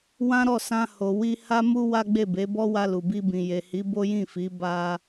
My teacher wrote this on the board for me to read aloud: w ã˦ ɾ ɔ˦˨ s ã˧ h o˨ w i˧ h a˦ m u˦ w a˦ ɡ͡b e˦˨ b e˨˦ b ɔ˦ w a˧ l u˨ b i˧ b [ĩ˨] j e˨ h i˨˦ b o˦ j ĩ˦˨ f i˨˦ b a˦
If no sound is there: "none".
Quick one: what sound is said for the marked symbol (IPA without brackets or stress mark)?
ĩ˨